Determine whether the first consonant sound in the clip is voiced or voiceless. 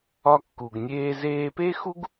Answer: voiceless